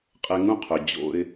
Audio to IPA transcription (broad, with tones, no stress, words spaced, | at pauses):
qʼɛ˧ŋũ˦qʰœ˨ d͡ʑo̰˧ɪ̯